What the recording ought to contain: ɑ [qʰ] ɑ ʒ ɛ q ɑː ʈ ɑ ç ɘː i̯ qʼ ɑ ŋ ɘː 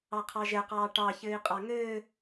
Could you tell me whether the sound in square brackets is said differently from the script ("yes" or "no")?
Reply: no